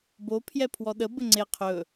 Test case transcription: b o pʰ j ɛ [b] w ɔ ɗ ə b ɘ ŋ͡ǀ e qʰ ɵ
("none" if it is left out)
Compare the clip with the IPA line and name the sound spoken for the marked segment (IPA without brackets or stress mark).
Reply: pʰ